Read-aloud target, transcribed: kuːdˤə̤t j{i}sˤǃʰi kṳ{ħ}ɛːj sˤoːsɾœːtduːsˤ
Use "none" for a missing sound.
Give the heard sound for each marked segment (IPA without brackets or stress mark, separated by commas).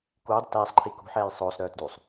i, ħ